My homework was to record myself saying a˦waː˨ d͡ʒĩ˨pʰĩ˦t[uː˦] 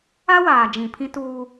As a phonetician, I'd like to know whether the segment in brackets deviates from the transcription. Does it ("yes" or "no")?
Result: no